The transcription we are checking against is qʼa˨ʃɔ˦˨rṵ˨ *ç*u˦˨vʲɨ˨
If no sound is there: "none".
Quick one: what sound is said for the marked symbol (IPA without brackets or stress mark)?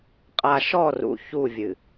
ç